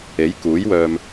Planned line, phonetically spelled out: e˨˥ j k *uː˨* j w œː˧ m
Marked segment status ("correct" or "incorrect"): incorrect